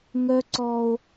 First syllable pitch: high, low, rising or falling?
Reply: high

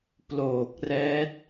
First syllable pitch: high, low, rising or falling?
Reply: low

